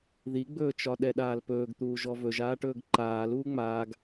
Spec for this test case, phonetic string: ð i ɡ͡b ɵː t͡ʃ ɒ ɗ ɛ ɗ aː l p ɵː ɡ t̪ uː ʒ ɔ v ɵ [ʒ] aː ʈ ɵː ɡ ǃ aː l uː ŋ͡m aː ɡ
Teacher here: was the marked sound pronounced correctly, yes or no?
yes